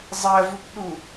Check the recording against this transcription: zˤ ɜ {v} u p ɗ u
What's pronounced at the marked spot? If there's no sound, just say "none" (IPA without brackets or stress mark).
v